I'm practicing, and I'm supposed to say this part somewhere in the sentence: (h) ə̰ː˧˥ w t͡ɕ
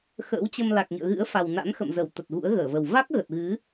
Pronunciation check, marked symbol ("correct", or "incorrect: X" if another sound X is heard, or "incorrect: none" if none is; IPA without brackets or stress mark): incorrect: x